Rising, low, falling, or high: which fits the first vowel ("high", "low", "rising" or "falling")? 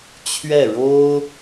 falling